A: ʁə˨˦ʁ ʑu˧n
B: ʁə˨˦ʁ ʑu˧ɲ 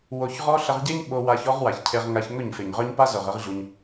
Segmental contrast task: B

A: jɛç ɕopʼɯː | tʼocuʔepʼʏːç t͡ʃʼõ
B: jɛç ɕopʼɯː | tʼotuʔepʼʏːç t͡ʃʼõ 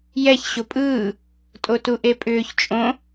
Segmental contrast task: B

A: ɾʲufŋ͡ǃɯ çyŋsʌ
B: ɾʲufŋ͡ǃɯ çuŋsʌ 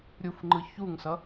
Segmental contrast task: B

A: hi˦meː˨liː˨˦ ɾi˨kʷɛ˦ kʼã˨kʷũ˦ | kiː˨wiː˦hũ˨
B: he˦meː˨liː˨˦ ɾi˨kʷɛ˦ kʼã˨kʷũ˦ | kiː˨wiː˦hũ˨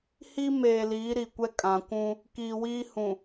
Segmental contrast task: A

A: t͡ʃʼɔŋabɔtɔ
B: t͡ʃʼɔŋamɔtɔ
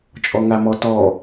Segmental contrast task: B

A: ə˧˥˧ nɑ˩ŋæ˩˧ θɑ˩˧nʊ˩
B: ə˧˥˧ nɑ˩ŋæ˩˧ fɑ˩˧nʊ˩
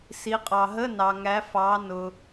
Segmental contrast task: B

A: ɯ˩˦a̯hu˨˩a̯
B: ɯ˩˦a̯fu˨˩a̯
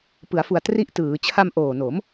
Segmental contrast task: B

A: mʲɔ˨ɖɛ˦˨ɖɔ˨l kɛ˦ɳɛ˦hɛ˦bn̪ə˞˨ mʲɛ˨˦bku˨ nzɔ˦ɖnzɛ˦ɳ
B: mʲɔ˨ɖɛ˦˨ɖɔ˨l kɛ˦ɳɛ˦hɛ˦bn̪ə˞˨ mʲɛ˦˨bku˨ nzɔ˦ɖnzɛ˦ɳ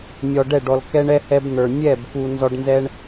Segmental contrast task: B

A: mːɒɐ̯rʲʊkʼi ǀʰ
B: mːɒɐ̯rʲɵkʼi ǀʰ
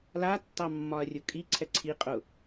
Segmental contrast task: A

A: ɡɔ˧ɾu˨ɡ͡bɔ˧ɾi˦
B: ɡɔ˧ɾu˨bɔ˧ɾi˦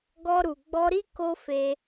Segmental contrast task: A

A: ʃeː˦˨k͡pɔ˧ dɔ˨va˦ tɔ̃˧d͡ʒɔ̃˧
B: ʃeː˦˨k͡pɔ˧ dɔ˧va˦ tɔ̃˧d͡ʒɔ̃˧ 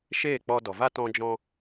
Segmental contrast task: A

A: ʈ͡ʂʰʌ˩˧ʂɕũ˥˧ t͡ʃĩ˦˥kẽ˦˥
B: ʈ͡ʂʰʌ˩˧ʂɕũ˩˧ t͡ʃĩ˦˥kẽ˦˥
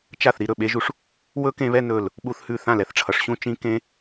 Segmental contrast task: A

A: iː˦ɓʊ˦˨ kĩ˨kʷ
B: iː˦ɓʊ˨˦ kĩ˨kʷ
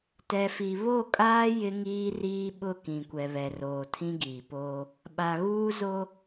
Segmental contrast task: A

